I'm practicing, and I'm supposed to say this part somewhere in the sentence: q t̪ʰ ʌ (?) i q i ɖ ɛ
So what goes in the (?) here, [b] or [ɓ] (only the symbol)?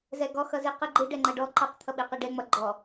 ɓ